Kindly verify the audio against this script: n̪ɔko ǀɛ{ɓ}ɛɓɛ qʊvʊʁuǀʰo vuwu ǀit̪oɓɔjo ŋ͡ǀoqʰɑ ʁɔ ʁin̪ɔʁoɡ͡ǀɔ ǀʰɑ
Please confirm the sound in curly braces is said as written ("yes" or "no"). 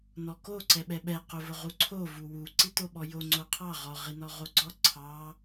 yes